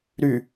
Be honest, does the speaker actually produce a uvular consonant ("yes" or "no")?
no